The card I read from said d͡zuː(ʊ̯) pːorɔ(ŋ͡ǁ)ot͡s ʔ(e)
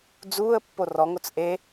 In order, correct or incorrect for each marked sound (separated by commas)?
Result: incorrect, incorrect, correct